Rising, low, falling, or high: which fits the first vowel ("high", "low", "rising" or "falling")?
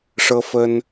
high